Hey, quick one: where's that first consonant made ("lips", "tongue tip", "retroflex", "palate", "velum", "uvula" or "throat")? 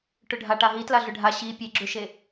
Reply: retroflex